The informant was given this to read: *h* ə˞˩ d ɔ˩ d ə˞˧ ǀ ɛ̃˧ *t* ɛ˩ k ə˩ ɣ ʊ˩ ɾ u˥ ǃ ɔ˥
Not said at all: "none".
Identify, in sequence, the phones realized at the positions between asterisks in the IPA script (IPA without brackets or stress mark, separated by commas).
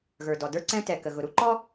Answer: ɣ, t